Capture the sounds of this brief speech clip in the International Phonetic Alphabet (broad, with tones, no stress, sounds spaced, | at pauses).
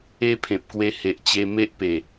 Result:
e˦ pʰ ẽ˨ p̚ k w e˧ h e˨ ʔ t͡ɕ e˧ m e˦ ʔ p e˨˩